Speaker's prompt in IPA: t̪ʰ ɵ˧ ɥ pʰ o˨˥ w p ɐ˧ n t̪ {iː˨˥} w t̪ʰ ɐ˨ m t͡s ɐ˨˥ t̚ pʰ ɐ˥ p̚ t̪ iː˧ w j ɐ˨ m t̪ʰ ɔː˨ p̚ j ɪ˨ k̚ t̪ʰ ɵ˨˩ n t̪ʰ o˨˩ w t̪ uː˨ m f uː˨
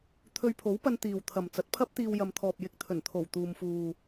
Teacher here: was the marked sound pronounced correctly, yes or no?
no